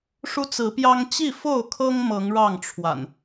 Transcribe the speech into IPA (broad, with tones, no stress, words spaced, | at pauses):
ʂu˦t͡sɹ̩˨˦pjɑ˦ŋ t͡ɕi˥˨ fo˥˨ʊ̯kʰɤ˦ŋ mɤ˨˦ŋɻɑ˥˨ŋʈ͡ʂʰwa̰˨˩n